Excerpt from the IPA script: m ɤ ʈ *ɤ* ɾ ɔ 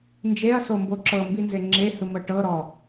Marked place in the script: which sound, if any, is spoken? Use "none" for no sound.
ɤ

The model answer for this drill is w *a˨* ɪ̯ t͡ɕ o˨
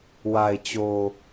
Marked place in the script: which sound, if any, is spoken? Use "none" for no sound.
a˨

